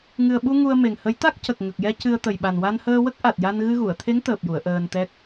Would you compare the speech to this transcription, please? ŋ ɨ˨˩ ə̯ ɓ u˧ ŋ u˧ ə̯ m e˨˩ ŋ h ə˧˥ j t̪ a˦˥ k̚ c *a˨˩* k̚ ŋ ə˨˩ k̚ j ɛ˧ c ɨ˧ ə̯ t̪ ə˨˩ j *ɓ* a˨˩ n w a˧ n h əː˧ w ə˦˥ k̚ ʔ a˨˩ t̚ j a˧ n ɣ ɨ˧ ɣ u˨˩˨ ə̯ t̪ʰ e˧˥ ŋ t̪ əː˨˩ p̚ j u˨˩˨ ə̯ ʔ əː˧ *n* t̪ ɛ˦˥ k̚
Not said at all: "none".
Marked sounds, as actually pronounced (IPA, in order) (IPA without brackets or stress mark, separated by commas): ə˨˩, ɓ, n